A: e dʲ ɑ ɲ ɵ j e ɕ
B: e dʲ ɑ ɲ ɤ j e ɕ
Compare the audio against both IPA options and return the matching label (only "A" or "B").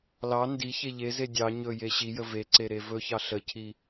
A